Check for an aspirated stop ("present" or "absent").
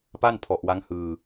present